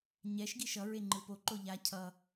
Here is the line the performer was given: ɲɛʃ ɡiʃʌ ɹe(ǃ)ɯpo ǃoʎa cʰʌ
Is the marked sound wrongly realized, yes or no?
yes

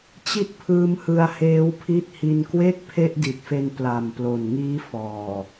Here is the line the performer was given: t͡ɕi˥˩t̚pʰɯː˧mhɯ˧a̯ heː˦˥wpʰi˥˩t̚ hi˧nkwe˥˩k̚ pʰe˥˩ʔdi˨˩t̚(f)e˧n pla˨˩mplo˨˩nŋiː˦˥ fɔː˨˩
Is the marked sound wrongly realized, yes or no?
no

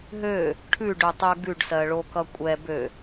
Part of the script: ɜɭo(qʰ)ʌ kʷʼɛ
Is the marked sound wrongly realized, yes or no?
yes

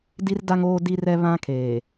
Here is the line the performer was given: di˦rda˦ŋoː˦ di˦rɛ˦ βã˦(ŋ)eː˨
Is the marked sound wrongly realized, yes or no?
yes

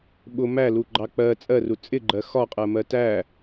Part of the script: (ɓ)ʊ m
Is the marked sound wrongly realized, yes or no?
no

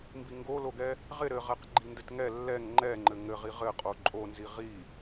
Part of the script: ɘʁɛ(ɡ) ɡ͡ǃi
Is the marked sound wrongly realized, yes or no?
yes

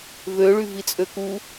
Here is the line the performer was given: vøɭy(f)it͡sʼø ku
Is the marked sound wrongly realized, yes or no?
yes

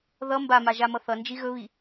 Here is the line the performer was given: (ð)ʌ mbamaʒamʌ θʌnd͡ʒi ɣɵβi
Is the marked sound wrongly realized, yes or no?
no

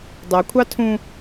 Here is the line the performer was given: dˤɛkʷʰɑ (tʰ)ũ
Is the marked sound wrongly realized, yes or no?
no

